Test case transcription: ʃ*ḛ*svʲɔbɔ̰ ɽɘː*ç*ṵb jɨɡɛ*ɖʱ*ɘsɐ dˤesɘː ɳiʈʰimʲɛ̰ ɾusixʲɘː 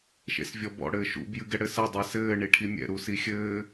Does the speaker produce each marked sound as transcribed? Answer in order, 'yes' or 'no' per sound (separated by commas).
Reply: yes, no, no